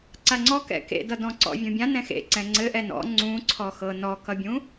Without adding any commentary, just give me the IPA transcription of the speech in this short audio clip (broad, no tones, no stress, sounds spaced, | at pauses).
ǀ a ŋ͡ǀ ɔ k ɛ̰ k ḛ d ʌ d ɔ̃ ǀ ɔ̰ vʲ ũ bʲ ã n ɛ̃ x ḛ ǀ ɛ̃ ŋ͡ǀ ɘ ʔ ɛ n ɔ̰ ŋ͡ǀ ũ ǀʰ ɔ x ɤ n ɔ k ʌ bʲ ũ